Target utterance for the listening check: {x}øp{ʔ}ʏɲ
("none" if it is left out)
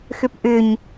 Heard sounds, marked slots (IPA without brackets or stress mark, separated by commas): x, ʔ